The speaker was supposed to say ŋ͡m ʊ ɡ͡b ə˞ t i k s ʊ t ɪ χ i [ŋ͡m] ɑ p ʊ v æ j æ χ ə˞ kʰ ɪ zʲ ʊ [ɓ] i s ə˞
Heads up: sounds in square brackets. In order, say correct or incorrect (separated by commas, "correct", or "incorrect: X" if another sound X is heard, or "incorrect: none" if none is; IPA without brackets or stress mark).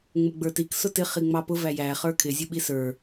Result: correct, correct